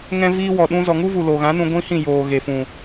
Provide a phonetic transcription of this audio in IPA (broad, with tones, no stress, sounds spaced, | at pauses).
ŋ ɛ̃˦ v iː˦ w ɔ˨ ɗ ũ˧ z ɔ˨ ŋ u˦ v u˨ l o˨ ɣ ã˨˦ n ũ˧ ɡʷ ĩ˦ h ĩ˦˨ j oː˨ ɣ e˨ f ũ˨